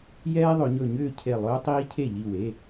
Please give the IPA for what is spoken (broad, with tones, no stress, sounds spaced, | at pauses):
j ɛː˦ ðˤ ɵ˩˧ ɲ ɵ˧˩ ɲ ʏː˥˩ cʰ e˧˩ lˠ ɵː˦ tˤ iː˦ cʰ e˥˩ ʎ i˧˩ w e˩˧˩